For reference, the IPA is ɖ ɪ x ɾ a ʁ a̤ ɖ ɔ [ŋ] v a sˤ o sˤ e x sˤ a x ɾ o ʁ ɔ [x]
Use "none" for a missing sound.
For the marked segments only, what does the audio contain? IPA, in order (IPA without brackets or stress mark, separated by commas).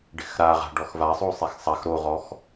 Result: x, x